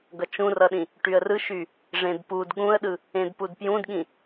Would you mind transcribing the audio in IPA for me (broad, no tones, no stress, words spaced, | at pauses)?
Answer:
ɡʌt͡ʃũrʌɗĩ | ʈyə̯rɯʃy | ʐẽdpud ɠũə̯ɗɯ | ẽdpudpjũdɠĩ